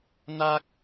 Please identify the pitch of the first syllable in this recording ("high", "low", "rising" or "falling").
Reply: high